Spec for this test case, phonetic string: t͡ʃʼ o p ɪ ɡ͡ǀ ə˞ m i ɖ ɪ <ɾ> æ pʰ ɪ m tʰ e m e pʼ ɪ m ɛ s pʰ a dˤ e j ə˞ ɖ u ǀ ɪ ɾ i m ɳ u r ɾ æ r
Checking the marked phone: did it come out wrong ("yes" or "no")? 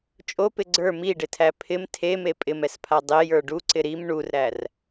yes